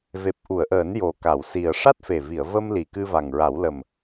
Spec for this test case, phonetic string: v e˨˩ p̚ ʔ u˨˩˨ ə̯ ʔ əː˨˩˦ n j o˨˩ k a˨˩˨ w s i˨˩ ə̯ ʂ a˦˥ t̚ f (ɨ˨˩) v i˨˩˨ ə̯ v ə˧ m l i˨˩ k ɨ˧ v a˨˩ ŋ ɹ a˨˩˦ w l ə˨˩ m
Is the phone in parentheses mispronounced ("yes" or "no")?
yes